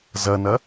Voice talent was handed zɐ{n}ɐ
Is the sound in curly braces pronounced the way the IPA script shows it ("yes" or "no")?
yes